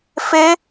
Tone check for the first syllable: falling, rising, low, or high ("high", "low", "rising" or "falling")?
high